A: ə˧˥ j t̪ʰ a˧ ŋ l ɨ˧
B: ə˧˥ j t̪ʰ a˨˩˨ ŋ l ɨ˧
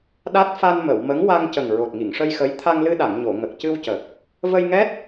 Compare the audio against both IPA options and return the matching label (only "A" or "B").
A